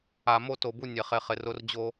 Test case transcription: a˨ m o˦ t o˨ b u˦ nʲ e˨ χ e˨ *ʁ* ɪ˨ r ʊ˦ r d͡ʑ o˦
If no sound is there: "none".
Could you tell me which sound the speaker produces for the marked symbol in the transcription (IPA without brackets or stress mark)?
χ